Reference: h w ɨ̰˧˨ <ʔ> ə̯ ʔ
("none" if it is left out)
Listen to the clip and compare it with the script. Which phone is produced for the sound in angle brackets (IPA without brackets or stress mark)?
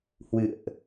none